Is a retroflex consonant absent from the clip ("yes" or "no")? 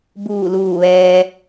yes